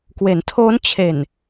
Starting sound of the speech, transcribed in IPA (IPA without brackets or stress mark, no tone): k